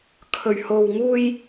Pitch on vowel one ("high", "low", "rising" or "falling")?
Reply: low